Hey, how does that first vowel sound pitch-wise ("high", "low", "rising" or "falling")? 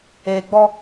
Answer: low